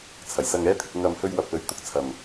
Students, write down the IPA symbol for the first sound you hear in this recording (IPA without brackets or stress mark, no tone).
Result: t͡sʰ